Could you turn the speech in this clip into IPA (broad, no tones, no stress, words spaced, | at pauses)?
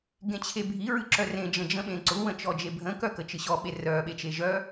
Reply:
ɡẽt͡ɕʰebʱi ɹɨǁœrẽ d͡ʒə̃d͡ʒə̃ɓẽǀʊ wə̃t͡ʃɔd͡ʒebʱə̃ kœkət͡ʃɨɕɔ ɓerœ ɓet͡ʃeʒœ